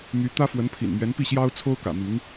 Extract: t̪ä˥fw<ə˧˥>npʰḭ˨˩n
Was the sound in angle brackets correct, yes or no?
yes